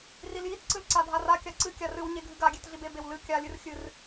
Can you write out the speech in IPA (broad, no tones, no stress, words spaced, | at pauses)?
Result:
riljit ǀɨlǀadʱara kʲaǀɨ kʲarɨw ɲeɡʱɨɡa ɡʲetɮibe bewlɨ kʲa lʲɨrxʲɨr